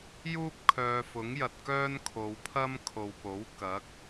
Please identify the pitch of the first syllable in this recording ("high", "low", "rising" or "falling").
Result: high